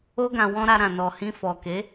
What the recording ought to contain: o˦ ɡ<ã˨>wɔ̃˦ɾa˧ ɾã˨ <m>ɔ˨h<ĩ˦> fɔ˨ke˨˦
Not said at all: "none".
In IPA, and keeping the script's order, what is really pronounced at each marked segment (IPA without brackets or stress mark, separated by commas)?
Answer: ã˧, n, ĩ˧